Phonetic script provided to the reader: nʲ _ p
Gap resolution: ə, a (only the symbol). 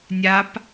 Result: a